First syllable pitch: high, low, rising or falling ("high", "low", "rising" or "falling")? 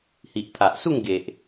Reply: low